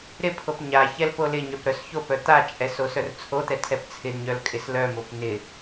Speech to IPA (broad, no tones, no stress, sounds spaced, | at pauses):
ɾ ɪ pʰ o p ɲ a ç ɛ l p o l ɪ ɲ œ p ɾ œ s ç o p œ t̪ a t͡ʃʼ ɛ s o s œ r t͡sʰ o t̪ ɛ tʰ ɛ p t͡sʰ ɪ d ɲ œ l kʼ ɪ s l œ m o p n̪ ɪ